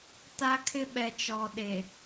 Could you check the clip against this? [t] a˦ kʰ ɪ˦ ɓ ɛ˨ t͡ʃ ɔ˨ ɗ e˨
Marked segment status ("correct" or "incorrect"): correct